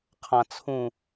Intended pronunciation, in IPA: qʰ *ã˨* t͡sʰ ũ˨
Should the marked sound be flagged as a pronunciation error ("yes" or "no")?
no